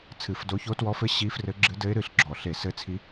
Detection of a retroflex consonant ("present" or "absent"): absent